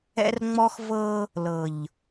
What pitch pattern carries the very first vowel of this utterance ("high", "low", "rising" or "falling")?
high